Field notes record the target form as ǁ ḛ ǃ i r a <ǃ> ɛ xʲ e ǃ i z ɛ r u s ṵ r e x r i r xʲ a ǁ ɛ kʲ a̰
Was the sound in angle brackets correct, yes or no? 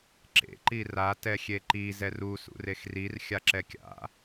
no